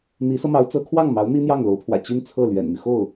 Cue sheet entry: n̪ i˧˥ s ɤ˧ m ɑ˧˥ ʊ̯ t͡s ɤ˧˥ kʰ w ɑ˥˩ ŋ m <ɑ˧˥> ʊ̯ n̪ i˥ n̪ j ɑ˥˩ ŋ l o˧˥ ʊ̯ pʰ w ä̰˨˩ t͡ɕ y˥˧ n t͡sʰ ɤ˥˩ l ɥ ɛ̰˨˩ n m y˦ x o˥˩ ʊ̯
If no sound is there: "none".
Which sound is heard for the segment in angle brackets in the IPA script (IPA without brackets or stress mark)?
ɑ˧˥